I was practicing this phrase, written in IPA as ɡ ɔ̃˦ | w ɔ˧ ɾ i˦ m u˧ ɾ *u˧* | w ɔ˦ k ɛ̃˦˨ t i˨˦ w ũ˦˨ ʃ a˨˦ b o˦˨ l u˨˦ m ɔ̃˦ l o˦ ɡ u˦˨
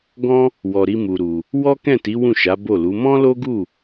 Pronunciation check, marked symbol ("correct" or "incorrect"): correct